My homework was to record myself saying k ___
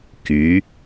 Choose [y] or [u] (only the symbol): y